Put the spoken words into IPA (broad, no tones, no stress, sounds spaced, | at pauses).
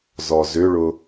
z ɔ z ʏ ɭ ʊ